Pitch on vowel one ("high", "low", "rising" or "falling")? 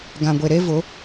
low